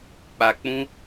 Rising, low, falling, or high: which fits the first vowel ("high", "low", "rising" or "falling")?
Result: low